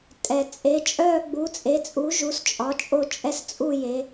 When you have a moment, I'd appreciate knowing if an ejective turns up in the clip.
yes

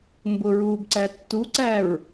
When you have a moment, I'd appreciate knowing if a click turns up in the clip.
yes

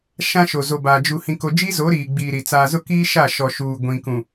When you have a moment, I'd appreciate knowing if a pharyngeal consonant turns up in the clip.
no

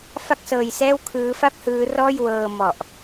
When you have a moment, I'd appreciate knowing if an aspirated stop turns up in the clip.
yes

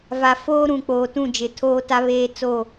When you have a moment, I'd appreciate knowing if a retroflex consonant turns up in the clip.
no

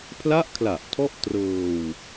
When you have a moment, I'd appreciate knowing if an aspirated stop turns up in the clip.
yes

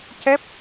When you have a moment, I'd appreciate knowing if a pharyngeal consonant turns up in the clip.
no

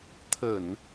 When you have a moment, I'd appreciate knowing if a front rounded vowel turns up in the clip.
no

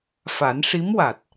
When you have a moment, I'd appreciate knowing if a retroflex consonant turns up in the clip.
yes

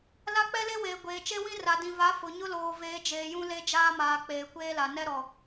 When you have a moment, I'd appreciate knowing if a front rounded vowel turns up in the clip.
no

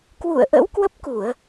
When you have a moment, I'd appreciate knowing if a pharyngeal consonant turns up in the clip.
no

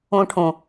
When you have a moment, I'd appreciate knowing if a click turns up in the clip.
no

